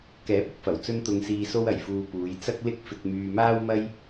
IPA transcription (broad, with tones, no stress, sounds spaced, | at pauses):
k ɛː˨˥ p̚ ʊ˨ k̚ f ɐ˨˩ w t͡s ɵ˧ n t̪ ʊ˧ ŋ s iː˧ s o˧ w ɐ˨˩ j f uː˨ p uː˨˧ j t͡s ɐ˥ k̚ l ɪ˥ k̚ f ɪ˧ k̚ m yː˧ m aː˥ w m ɐ˥ j